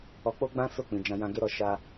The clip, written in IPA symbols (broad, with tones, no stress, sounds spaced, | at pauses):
ɔ˧ k͡p o˦ ɡ͡b ã˦ s o˦˨ k͡p ĩ˨ d͡ʒ ã˧ j ã˧ ɡ e˦ ɾ ɔ˦˨ ʃ a˧